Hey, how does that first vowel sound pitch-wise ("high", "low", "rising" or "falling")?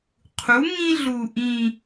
rising